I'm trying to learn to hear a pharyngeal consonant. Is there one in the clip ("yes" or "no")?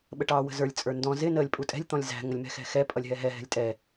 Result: no